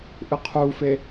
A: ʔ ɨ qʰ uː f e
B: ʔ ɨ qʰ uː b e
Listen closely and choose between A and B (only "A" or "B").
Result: A